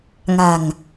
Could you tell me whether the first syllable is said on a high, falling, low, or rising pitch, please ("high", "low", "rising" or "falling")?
low